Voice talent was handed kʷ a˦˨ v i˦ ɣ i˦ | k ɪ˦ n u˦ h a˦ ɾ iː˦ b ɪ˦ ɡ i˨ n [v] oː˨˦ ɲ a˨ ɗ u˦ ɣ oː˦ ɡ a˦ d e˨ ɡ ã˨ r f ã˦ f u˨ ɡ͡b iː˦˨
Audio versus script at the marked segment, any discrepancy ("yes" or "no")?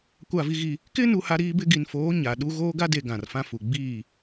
yes